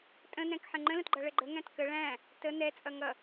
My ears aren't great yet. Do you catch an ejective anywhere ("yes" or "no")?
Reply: yes